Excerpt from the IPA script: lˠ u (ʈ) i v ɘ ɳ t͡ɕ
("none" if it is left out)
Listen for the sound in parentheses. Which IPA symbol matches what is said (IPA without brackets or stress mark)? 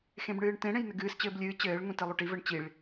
ʈ